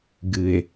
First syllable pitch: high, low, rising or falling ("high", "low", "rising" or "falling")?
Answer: low